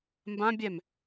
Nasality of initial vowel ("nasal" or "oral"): nasal